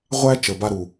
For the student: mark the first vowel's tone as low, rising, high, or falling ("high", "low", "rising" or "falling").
high